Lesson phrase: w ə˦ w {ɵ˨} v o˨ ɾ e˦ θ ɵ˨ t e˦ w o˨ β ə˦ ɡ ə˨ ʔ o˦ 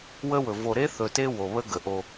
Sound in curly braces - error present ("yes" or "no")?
no